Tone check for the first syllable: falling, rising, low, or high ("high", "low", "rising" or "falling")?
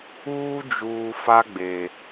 high